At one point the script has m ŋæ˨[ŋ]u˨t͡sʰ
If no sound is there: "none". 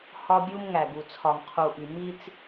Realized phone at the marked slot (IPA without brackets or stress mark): ɡ